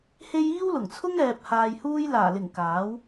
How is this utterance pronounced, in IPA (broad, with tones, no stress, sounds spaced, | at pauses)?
h e˧ j iː˥ w l ʊ˨˩ ŋ t͡sʰ ʊ˥ ŋ ɛː˧ p̚ h aː˧ j h uː˥ j l aː˨˩ l ɪ˨˩ ŋ k aː˨˥ w